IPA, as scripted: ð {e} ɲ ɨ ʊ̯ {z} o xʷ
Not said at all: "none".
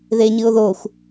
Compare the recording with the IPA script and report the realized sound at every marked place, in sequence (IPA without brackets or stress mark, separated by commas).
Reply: e, ð